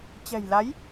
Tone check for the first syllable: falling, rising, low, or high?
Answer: low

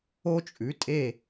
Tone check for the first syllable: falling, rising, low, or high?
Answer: high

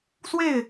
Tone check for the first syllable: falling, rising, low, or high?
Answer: falling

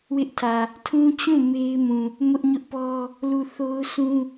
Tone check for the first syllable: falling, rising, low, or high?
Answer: high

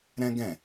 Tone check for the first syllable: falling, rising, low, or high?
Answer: high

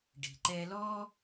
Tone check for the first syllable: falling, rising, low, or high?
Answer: low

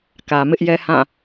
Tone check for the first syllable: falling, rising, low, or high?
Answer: low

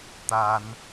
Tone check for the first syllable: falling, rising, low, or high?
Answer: high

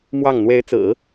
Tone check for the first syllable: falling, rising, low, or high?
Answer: falling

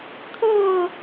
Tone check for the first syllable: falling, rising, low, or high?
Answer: falling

